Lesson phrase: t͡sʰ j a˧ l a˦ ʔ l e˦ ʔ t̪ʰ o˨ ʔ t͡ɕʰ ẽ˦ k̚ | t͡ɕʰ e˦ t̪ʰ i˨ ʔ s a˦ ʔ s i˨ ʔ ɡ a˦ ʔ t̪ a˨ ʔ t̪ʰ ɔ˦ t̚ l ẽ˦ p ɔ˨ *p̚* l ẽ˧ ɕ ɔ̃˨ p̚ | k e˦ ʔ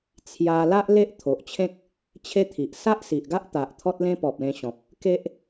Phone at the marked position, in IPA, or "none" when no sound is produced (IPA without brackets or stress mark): p̚